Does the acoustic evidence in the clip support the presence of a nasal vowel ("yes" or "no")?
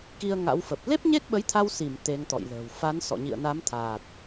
no